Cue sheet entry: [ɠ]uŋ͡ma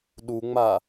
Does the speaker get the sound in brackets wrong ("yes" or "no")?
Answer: yes